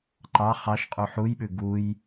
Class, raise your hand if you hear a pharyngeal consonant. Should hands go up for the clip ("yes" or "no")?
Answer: yes